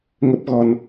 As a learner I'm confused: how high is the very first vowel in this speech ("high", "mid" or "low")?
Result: mid